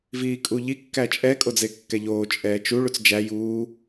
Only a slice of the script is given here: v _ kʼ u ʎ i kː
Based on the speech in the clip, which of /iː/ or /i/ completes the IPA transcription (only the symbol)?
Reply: iː